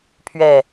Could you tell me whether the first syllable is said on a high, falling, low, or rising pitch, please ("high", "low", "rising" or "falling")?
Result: low